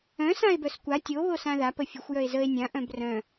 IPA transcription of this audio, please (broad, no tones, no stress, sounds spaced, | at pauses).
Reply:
œ̃ s ã e̯ b œ s kʷ a tʲ o β o s ã ð a p ə fʲ ə xʷ j œ e̯ z ə e̯ nʲ ã ʔ œ̃ b r œ̃